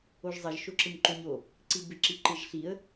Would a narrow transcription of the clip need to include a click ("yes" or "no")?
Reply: yes